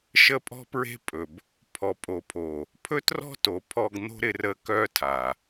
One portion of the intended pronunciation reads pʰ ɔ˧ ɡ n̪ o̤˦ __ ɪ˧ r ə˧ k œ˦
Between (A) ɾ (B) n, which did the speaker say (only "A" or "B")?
A